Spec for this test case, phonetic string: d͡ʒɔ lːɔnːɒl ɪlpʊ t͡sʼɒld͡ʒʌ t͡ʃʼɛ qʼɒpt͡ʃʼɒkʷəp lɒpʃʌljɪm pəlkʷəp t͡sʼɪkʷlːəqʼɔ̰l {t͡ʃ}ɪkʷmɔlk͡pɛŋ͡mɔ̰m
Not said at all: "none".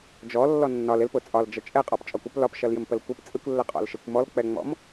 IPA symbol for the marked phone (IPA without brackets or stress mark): ʃ